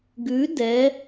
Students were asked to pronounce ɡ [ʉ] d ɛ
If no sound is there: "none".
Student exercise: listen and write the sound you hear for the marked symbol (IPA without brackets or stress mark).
ʉ